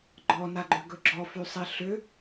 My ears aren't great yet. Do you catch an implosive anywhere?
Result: no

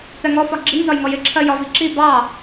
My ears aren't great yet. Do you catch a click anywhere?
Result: yes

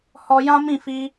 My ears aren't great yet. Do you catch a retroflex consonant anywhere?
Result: no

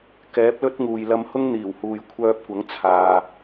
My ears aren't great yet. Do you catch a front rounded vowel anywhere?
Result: yes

